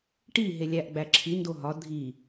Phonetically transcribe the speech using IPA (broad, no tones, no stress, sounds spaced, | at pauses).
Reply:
ʈ i ɦ e lʲ æ ʔ ɡ͡b æ ǁʰ i n d o ɦ ɒ dʱ i